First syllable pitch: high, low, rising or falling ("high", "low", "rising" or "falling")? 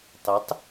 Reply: rising